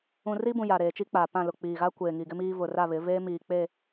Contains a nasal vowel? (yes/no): yes